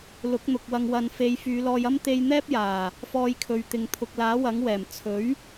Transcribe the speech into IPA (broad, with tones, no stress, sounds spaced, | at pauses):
l ʊ˨˥ k̚ n̪ ʊ˨ k̚ w ɐ˧ ŋ w ɐ˨ n f e˨˧ j f yː˨˧ l ɔː˧ j ɐ˥ m t̪ e˧ j n̪ ɛː˥ p̚ j aː˨˩ | f ɔː˧ j kʰ ɵ˨ ɥ t̪ ɪ˨ ŋ t̪ʰ ʊ˨ k̚ l aː˨˥ w ɐ˨˥ ŋ w ɛː˨˩ m t͡sʰ ɵ˨˥ ɥ